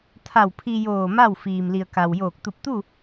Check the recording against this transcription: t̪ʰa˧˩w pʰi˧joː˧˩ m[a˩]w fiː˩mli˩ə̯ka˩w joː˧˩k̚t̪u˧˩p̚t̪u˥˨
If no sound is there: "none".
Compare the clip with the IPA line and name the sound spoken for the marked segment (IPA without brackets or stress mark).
a˥˨